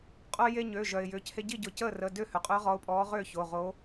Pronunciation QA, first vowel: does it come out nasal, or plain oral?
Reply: oral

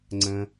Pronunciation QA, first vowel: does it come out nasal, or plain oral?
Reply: nasal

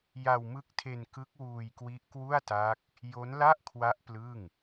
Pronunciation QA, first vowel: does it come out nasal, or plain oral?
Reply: oral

